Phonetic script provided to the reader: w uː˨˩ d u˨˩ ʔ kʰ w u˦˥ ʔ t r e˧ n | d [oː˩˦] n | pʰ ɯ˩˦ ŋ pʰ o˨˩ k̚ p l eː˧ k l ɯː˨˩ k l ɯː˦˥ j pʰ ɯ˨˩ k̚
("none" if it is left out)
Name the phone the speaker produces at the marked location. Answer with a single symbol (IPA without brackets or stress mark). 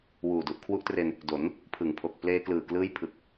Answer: o˩˦